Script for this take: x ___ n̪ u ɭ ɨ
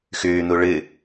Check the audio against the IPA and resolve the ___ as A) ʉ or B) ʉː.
B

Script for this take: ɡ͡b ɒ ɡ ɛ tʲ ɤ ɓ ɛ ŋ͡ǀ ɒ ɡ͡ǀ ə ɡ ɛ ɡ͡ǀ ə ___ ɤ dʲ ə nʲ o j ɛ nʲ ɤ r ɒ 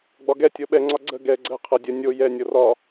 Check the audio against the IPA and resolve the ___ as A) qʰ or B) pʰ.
A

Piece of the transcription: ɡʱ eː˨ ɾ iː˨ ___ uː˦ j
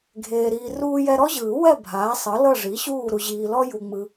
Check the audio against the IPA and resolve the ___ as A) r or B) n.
A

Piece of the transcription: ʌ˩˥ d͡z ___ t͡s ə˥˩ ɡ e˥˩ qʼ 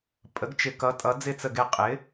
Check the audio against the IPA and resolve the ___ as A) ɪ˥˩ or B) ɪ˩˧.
A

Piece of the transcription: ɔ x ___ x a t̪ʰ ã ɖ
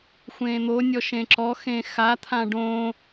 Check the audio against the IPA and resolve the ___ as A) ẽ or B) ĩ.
A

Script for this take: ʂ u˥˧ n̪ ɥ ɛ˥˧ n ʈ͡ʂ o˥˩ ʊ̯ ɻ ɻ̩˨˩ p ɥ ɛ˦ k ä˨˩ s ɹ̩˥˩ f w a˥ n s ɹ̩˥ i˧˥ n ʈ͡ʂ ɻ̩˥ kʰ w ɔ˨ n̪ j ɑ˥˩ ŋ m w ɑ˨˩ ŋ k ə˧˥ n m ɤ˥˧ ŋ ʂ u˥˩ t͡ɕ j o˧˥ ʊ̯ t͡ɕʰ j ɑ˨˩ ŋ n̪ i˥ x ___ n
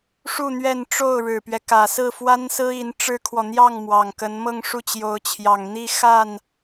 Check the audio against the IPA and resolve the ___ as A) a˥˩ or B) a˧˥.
A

